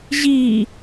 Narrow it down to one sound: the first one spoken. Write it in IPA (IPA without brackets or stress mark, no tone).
ʑ